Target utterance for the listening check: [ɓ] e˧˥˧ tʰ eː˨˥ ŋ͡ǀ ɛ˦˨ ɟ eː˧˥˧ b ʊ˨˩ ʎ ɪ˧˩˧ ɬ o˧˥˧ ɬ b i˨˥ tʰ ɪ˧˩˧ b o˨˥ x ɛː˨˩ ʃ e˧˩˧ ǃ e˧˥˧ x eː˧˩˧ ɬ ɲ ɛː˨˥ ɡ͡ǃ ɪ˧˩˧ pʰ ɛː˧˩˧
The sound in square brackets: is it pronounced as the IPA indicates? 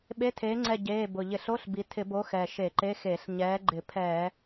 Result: yes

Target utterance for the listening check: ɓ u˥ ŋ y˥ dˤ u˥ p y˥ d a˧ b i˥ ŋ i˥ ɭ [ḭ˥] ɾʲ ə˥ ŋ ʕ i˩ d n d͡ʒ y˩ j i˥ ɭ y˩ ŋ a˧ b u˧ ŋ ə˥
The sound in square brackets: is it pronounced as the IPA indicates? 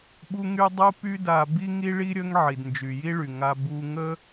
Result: no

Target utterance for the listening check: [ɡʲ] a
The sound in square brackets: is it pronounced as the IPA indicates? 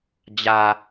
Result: no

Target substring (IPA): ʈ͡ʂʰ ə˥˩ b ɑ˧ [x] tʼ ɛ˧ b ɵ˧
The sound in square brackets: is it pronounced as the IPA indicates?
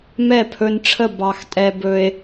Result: yes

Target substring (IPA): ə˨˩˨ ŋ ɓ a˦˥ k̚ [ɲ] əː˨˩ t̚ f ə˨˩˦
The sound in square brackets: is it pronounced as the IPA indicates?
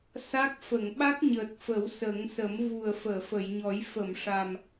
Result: yes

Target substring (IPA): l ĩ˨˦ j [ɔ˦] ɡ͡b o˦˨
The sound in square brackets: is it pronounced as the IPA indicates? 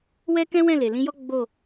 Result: yes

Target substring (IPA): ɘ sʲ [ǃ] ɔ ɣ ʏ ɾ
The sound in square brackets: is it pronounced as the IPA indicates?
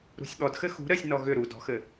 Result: no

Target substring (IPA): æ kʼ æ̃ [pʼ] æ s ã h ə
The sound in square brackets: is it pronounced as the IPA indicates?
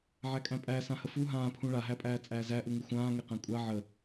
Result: yes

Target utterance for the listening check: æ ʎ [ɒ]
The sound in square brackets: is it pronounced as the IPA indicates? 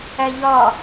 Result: yes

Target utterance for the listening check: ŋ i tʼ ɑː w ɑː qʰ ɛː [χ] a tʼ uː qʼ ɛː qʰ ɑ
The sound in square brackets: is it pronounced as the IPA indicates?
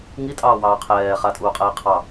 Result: yes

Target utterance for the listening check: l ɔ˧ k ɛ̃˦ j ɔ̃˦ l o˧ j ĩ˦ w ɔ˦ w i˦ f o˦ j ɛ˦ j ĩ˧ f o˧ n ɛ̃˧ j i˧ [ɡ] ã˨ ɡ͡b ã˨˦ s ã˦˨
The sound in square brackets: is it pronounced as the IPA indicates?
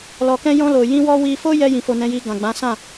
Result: yes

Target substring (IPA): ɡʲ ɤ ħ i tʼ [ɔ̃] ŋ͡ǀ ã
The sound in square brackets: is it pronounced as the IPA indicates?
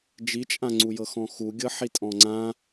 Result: yes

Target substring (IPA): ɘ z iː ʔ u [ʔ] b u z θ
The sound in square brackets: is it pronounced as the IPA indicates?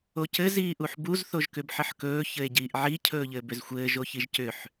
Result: no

